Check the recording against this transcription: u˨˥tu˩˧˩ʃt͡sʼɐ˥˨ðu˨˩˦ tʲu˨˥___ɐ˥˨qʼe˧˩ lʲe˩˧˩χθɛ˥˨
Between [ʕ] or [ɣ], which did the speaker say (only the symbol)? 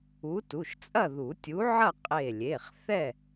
ʕ